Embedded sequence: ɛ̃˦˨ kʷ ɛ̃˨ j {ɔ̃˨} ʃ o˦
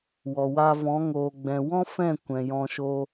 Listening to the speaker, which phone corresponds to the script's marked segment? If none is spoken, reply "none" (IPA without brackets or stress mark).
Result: ɔ̃˧